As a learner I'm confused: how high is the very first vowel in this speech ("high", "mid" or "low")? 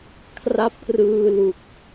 low